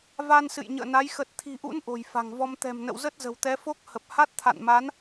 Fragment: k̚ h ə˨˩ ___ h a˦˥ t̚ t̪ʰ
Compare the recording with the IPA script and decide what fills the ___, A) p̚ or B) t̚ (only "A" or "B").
A